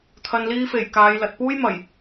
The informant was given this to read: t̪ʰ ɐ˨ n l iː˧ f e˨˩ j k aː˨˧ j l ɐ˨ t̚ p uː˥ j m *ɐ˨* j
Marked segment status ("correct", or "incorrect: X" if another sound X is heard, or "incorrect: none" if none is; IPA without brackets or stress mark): incorrect: ɐ˨˩